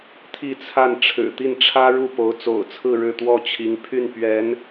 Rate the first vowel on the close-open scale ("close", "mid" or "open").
close